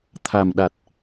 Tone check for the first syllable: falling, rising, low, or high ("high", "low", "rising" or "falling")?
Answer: low